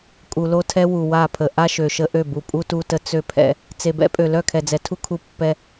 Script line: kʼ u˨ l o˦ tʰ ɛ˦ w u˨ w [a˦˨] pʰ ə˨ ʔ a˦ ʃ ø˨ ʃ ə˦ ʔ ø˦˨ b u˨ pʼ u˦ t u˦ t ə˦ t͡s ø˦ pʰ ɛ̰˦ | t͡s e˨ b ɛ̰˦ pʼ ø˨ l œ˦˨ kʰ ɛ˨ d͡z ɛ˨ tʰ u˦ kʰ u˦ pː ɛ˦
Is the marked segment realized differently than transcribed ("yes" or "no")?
no